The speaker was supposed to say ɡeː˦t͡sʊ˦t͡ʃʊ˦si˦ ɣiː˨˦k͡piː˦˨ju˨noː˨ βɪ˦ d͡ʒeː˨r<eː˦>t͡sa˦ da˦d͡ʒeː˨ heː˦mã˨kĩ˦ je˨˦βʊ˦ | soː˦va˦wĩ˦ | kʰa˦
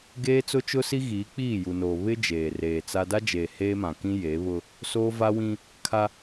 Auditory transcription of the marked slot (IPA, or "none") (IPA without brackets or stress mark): eː˨